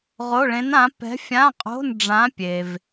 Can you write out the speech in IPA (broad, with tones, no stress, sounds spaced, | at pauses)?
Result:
ʁ o˧˥˧ ɭ ẽ˧˥ n ã˧˥ p ɛ̤˧˥ fʲ ã˧˥˧ qʼ o̤˧˥˧ n ɖ͡ʐ ã˧˥ pʲ e˨ v